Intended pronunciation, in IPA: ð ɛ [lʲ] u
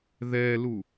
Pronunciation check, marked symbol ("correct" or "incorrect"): incorrect